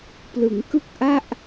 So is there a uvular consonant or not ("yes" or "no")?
no